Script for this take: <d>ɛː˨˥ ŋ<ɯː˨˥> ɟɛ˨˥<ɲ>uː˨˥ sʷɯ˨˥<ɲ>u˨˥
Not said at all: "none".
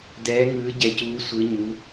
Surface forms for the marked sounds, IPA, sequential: d, ɯː˨˥, c, ɲ

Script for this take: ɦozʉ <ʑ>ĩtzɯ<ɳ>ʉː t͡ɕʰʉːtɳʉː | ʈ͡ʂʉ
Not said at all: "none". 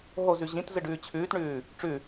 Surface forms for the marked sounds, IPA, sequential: ʑ, ɖ

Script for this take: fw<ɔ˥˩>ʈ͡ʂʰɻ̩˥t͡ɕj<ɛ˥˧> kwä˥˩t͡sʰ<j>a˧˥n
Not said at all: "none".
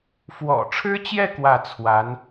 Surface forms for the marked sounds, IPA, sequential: ɔ̰˨˩, ɛ˥˧, w

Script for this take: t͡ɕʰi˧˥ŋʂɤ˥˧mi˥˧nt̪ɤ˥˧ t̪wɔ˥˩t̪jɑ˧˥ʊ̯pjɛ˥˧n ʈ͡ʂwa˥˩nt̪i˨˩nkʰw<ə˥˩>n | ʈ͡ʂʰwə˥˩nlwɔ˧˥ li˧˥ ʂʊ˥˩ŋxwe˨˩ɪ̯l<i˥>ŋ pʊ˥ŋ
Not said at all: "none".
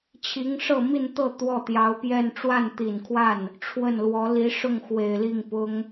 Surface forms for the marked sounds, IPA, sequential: a˥˩, i˥˩

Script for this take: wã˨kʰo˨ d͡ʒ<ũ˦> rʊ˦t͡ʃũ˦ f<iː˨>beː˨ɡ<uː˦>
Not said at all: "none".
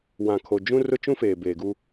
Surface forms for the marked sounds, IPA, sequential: ũ˦, eː˨, u˦

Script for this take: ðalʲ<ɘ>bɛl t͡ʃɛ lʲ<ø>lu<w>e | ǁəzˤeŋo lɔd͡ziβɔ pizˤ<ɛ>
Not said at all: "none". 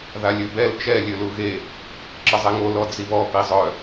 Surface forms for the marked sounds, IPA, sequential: ø, ø, ɣ, œ

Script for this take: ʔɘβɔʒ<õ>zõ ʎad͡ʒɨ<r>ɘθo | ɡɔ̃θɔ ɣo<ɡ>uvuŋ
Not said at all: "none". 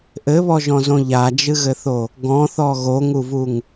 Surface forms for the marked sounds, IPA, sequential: ɔ̃, ɣ, ŋ

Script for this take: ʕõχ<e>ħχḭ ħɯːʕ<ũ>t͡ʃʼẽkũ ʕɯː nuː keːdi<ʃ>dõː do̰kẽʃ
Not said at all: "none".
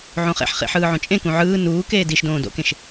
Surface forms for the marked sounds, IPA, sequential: ḛ, õ, ʃ

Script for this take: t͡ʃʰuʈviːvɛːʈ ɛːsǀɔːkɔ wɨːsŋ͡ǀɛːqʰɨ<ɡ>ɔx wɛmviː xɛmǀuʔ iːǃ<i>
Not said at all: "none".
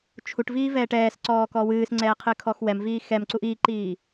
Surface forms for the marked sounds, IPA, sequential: kʰ, iː

